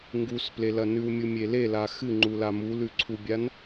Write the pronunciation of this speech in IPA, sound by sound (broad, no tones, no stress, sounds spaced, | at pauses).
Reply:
ŋ ɡ u s p l e l ɐ n ʉ w mʲ u mʲ e l e l a x ɨ ŋ͡ǃ u l a m u l ʉ ǀʰ u bʲ a n